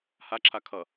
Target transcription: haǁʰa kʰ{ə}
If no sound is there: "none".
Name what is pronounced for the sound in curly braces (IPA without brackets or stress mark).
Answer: ʌ